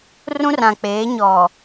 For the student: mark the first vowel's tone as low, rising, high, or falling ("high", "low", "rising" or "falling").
high